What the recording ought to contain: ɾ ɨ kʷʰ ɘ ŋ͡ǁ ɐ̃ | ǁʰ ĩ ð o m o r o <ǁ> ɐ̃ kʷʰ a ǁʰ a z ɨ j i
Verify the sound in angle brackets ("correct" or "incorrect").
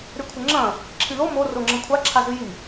incorrect